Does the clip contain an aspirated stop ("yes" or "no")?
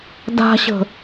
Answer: no